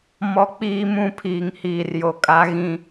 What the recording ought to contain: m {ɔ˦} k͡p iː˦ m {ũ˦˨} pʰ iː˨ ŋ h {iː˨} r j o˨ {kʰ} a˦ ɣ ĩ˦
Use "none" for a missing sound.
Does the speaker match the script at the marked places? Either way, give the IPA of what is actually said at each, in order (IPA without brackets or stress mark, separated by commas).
ɔ˦, ũ˦˨, iː˨, kʼ